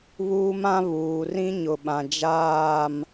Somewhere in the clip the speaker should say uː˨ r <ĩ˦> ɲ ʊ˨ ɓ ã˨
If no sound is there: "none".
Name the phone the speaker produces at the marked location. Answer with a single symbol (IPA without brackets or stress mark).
ĩ˦